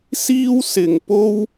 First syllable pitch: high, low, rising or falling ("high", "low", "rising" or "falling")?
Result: high